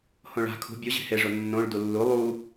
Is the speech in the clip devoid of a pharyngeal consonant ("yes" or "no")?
yes